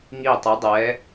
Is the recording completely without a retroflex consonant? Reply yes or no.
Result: yes